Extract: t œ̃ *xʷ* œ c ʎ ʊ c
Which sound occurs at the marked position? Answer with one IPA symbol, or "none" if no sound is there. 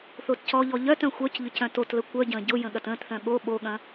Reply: xʷ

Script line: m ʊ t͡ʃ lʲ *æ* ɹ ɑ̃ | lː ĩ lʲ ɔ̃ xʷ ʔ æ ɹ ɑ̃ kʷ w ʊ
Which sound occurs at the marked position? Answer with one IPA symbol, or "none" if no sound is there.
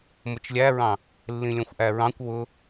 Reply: æ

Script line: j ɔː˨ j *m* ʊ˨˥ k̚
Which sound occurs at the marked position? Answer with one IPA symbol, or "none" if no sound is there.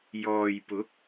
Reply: p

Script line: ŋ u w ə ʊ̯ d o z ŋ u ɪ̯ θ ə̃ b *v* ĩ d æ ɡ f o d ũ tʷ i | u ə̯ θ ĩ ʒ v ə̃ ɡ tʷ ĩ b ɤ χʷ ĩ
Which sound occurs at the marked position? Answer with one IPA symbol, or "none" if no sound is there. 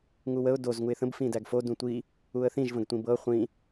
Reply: f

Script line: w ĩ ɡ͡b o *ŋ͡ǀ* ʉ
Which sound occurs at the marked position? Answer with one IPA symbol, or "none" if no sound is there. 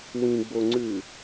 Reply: ŋ͡ǀ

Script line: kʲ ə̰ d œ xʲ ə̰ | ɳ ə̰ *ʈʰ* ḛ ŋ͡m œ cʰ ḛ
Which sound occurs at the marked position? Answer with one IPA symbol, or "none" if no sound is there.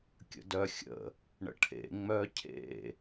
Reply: ʈʰ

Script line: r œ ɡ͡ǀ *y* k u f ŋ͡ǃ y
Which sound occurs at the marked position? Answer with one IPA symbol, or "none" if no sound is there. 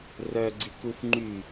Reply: i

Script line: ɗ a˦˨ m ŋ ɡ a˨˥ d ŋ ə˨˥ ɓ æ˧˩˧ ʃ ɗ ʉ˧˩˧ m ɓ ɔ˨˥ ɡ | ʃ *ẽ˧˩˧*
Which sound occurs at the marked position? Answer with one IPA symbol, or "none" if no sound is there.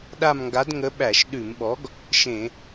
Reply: ẽ˧˩˧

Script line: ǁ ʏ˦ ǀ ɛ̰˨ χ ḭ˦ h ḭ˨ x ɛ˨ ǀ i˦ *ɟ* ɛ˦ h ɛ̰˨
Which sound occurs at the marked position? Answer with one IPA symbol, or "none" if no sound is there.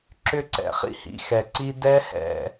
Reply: d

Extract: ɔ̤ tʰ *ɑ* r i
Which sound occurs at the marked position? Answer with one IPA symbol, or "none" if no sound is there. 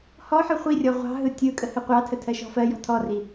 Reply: ɔ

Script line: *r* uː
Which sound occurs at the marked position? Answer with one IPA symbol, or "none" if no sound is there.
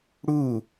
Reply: ɽ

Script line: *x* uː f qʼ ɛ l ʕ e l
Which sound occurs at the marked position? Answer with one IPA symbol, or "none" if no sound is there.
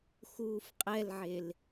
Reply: x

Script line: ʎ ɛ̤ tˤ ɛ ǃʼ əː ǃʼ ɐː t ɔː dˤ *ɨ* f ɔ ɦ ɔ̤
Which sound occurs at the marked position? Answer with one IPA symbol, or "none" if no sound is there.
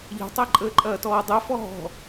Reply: ɛ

